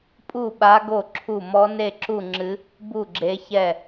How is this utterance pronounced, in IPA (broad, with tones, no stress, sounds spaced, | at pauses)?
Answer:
pʼ u˥˩ ɓ a˧˥ ɡ o˥˩ ǁʰ u˥˩ m ɔ˧˥ n e˥˩ ǁ u˥˩ ŋ͡ǁ ɨ˧˥ | b u˥˩ ɡ͡ǁ e˧˥ ç ɛ˥˩